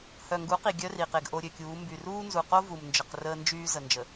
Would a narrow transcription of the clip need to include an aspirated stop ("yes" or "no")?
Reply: no